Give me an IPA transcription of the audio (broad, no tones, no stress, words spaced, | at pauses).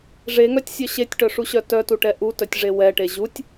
ʐeŋœtʲsʲœ ɕetʲʈœʂuɕœ tœtuʈɛ ʔutœtʲʐe wɛʈe ʑutʲ